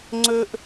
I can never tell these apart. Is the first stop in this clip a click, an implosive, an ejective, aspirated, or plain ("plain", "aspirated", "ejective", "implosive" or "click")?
click